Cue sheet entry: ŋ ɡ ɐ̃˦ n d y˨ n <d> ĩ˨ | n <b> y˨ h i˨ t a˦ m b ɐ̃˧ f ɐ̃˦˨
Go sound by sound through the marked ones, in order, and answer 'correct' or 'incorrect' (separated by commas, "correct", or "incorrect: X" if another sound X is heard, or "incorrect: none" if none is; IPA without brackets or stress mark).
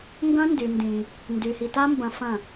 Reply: correct, incorrect: d